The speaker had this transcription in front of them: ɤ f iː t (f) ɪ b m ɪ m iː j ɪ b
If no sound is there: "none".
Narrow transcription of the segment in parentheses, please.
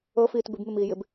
b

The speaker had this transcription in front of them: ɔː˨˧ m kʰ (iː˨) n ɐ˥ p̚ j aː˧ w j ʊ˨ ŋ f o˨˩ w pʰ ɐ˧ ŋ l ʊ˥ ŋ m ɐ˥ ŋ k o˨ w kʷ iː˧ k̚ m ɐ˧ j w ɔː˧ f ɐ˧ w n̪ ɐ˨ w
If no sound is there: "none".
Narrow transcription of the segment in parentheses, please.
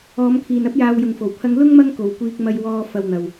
iː˨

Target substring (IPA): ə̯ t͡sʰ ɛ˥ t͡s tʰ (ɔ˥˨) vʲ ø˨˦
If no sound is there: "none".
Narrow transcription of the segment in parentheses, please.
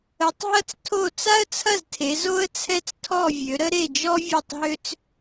ɔ˥˨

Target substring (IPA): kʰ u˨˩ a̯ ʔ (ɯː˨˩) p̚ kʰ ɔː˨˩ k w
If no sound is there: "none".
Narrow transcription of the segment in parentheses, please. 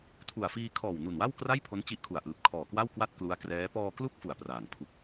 ɯː˨˩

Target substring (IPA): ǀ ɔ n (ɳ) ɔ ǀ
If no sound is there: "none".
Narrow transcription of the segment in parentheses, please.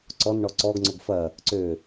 ɳ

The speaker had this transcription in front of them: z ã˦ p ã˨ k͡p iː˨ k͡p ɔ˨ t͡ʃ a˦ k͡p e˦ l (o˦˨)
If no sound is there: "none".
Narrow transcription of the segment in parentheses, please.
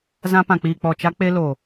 o˨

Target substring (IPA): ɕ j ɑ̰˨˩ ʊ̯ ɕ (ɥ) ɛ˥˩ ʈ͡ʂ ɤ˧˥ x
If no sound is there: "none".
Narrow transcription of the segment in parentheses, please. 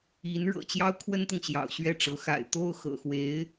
ɥ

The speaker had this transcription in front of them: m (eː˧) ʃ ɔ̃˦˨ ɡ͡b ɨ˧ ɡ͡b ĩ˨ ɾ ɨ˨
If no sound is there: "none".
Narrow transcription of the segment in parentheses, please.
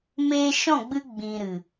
eː˧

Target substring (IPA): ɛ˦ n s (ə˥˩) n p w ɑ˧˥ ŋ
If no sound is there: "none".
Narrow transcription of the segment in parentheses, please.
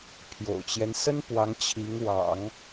ə˥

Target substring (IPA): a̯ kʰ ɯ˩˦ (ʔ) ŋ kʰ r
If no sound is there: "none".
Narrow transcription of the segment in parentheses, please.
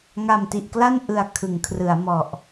none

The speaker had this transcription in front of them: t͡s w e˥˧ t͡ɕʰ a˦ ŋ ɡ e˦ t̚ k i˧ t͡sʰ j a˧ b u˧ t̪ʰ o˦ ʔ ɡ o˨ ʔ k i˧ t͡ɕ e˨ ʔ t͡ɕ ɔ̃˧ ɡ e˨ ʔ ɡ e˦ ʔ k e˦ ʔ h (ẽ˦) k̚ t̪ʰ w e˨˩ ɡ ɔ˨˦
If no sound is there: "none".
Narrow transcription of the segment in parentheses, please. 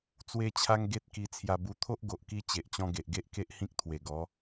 ĩ˦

